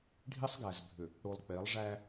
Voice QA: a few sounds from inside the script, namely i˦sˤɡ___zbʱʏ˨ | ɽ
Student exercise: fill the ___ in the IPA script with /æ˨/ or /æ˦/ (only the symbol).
æ˨